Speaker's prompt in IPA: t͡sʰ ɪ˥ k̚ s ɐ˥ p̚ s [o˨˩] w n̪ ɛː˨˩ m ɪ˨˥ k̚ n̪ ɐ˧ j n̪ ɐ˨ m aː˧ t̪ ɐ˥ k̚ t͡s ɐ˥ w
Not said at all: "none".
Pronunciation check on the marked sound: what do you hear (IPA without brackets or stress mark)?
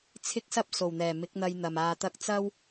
o˨˩